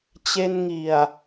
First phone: t͡ɕ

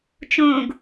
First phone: t͡ʃ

